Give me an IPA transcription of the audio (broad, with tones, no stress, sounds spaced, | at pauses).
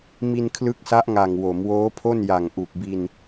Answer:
m i˧ n kʰ l ɯ˦˥ k̚ s a˦˥ ʔ ŋ a˨˩ ŋ w o˩˦ m w oː˦˥ pʰ o˥˩ n j a˨˩ ŋ ʔ u˨˩ k̚ b i˧ n